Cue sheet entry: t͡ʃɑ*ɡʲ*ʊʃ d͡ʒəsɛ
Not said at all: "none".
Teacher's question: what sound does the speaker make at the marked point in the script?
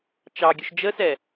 ɡʲ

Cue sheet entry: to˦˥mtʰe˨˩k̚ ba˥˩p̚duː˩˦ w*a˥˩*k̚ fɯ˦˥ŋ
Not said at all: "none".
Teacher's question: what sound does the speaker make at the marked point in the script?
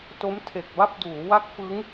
a˦˥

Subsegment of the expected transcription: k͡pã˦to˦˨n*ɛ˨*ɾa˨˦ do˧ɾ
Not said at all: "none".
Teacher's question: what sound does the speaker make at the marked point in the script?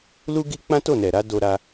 ɛ˨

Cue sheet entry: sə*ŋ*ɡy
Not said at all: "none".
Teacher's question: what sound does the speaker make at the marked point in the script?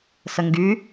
ŋ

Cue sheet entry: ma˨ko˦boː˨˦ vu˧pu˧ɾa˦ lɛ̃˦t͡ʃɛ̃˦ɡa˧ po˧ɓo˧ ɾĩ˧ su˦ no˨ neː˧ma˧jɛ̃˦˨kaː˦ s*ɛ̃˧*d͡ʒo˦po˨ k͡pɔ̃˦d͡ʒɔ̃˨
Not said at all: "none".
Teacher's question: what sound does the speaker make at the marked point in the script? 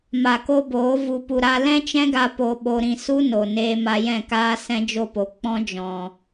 ɛ̃˦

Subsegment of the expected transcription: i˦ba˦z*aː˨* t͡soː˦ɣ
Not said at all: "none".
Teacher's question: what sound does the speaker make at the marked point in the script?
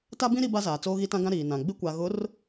aː˨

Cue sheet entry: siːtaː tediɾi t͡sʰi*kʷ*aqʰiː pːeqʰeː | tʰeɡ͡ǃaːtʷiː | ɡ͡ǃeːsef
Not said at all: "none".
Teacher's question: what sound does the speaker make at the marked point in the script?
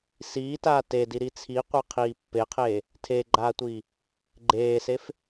qʷ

